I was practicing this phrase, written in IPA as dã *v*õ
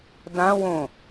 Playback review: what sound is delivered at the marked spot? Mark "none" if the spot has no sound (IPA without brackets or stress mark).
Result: w